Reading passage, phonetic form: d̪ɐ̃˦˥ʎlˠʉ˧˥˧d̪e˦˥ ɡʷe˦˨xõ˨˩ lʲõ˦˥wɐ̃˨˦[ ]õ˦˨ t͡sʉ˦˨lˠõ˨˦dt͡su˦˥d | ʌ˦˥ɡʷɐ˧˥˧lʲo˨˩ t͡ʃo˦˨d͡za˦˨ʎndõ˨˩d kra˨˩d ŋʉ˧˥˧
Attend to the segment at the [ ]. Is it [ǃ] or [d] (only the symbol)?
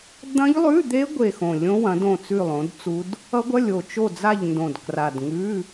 d